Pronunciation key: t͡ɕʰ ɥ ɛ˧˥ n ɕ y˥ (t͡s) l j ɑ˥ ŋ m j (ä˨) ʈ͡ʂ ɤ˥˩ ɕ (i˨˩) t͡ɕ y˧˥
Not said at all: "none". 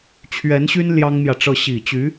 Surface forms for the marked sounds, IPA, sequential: n, ä˨, i˨˩

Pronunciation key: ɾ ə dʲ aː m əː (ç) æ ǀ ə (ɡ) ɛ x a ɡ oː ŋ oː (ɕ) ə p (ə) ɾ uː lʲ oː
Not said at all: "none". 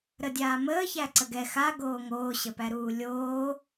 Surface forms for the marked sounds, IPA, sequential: ç, ɡ, ɕ, æ

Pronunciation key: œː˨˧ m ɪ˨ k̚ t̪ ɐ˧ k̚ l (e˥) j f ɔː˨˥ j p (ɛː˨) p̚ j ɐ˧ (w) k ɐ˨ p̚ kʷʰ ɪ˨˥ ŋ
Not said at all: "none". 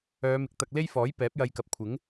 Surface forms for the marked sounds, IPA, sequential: e˥, ɛː˨˥, j

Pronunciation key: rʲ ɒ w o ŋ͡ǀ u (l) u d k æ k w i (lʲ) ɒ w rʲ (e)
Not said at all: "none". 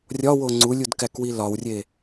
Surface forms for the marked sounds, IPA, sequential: lʲ, l, e

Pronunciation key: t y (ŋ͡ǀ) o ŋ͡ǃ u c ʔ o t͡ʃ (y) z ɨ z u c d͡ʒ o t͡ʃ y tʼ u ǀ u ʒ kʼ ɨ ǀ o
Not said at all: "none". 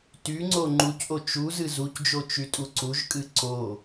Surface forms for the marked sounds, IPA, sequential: ŋ͡ǀ, u

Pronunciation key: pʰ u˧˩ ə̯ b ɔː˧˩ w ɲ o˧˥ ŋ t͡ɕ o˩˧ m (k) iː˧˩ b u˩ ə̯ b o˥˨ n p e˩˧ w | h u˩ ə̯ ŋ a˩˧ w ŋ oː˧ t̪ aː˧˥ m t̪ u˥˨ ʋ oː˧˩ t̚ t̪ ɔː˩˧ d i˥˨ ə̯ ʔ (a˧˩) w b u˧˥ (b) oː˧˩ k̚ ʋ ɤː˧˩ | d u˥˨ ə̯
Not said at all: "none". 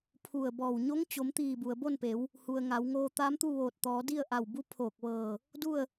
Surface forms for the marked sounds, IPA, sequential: t̪, a˧˩, pʰ

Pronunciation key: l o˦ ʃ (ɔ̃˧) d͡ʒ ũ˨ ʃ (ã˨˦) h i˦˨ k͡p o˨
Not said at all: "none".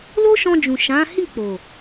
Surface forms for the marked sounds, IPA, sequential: ɔ̃˧, ã˨˦

